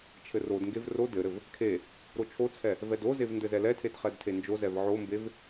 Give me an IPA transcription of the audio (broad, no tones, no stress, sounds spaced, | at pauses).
t͡ʃʰ ɘ r o d ŋ ɡ e v r o d ɘ ɾ ɘ v | kʰ e | ɾ o t͡ʃʰ o t͡sʰ ɛ | v ɛ d o z e v n d ɘ z ɛ l ɛ tʰ e d χ ɛ d tʰ e n d͡ʒ o z ɛ v ʕ o m b e v